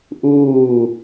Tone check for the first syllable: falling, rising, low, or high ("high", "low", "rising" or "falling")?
falling